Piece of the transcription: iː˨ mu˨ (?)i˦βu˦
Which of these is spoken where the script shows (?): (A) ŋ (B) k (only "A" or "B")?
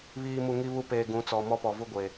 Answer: A